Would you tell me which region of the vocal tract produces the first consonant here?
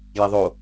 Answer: palate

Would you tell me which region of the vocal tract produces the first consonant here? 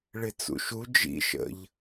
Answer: retroflex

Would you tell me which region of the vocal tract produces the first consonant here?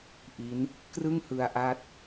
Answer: throat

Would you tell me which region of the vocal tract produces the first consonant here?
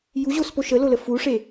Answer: palate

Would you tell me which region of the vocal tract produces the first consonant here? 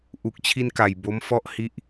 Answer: throat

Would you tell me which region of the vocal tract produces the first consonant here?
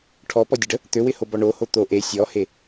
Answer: retroflex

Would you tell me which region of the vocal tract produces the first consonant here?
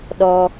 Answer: tongue tip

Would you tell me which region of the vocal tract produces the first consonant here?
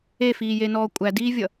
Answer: lips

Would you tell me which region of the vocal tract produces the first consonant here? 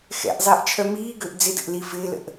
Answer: velum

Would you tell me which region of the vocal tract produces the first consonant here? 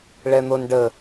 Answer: retroflex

